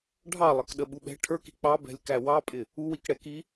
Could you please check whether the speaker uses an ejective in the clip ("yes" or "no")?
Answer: yes